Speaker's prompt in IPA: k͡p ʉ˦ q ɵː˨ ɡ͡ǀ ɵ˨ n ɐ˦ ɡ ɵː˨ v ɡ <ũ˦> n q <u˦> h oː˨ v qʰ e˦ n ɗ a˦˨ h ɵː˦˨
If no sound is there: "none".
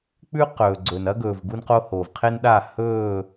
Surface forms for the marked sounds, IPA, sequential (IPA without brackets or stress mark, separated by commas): u˦, o˦